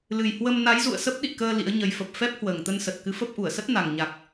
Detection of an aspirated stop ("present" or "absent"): absent